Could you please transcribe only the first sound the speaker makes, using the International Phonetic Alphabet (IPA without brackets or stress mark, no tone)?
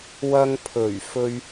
w